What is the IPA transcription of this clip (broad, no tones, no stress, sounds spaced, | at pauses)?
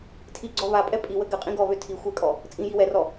tʰ i ɡ͡ǀ ɔ β a pʼ ɛ pʼ i w ə ɡ ɘ qʼ ĩ ɡ ɔ β ø tʰ i xʷ ɛ kʼ ɔ | t͡sʼ ĩ j i w ɛ r ɔ